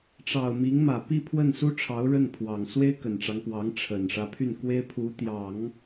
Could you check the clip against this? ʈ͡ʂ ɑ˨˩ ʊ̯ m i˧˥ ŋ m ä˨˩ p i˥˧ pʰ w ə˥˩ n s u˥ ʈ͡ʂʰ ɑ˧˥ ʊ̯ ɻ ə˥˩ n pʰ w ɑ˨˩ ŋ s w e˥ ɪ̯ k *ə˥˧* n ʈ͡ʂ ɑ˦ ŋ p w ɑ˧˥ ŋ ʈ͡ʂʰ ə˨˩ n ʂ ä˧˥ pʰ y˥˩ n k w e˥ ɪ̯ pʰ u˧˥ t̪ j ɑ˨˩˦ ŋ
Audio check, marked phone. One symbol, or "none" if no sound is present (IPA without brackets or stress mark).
ə˨˩